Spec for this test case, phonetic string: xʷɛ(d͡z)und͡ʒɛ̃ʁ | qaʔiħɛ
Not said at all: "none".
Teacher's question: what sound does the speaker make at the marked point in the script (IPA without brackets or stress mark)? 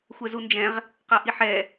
z